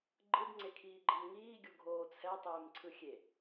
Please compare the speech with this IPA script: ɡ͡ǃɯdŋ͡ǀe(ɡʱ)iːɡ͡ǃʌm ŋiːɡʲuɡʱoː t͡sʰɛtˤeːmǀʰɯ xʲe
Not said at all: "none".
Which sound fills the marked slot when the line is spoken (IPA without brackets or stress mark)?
kʰ